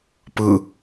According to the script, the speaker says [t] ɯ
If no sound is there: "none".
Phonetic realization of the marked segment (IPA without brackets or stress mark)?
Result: p